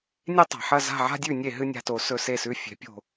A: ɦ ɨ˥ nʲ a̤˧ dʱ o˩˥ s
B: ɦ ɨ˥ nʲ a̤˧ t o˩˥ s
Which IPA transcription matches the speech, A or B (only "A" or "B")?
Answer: B